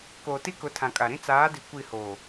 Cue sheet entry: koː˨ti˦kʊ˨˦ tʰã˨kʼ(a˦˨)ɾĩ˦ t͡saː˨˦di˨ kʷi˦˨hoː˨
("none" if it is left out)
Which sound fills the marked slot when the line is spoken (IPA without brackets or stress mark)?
a˨